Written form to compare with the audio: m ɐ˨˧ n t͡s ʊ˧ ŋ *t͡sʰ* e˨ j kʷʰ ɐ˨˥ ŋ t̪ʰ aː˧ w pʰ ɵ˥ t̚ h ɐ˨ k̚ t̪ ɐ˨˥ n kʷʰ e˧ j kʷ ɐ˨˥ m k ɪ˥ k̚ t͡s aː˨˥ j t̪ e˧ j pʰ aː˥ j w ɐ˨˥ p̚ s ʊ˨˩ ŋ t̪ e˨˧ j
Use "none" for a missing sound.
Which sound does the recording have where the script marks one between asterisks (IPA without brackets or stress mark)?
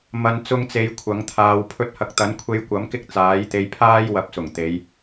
t͡s